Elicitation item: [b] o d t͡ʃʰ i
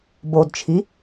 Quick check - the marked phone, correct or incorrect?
correct